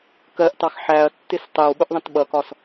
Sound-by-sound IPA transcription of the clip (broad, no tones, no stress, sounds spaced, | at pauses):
k ɜ ʔ t ɑ x ħ æ ɐ̯ tː ɪ s tˤ ɛ w ɓ ʊ ʔ ðˤ ə̃ t ɓ ʌ k ɒ s